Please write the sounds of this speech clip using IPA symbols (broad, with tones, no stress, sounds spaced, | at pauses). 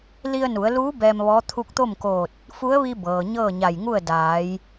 l i˧ ə̯ n u˩˧ ə̯ l uː˧˥ b ɛː˧ m ʋ ɔː˧˥ t̪ʰ u˧ k̚ t̪ o˥˨ m k oː˧˩ t̚ | f u˧˥ ə̯ ʋ i˧ b ɤː˩ ɲ ɤː˥˨ ɲ a˧˩ j ŋ u˥˨ ə̯ d aː˩˧ j